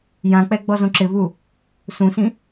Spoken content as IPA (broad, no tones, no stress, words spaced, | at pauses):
jãk͡pɛ ɡ͡bɔzõǁɪvu | sũsĩ